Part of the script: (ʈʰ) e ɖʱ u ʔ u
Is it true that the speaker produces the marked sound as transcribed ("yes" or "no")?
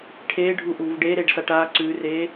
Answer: yes